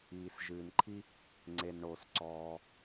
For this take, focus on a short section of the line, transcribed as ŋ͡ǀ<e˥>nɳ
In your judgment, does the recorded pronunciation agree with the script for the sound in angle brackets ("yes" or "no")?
no